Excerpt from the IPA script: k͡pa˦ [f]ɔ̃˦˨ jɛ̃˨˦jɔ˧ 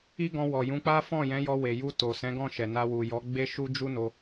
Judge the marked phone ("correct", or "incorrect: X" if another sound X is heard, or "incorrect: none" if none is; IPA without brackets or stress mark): correct